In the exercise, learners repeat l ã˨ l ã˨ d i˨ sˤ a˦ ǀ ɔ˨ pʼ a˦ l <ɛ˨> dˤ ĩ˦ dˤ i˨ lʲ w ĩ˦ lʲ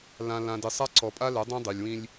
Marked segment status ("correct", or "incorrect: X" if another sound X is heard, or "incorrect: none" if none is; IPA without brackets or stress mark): incorrect: ɛ˨˦